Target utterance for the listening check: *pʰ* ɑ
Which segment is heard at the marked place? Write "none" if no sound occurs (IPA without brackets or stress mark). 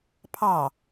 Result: pʰ